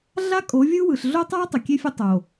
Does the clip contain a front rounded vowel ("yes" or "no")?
no